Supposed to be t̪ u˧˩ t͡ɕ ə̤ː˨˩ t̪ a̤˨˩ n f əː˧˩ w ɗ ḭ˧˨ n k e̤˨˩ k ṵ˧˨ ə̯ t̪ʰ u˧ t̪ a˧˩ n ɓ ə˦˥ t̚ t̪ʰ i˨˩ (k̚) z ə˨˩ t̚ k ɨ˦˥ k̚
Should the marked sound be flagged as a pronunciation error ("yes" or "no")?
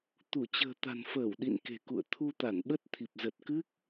yes